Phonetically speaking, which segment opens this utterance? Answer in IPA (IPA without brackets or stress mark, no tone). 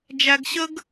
d͡ʒ